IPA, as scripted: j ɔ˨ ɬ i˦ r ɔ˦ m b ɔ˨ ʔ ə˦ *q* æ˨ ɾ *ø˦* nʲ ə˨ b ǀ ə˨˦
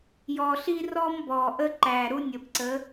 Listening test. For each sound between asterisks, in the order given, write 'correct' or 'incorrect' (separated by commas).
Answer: incorrect, incorrect